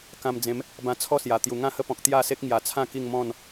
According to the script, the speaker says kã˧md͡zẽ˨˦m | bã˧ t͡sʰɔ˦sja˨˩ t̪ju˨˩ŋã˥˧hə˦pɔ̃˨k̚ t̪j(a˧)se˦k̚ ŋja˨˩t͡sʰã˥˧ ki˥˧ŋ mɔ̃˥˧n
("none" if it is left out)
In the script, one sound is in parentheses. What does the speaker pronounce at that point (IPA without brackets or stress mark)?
a˥˧